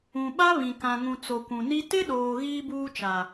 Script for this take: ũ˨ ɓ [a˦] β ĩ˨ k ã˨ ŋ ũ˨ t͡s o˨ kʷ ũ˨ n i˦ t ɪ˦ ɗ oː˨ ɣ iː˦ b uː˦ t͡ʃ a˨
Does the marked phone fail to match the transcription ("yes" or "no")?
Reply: no